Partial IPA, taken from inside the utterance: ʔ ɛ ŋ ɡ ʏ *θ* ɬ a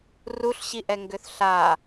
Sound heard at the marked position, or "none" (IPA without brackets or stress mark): θ